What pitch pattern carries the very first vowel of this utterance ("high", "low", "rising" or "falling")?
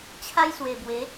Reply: high